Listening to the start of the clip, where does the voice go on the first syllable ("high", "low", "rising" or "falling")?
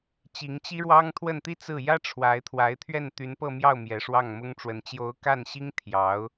rising